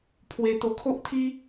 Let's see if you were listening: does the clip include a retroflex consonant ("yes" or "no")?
no